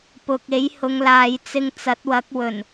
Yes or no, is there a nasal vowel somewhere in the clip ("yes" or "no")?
no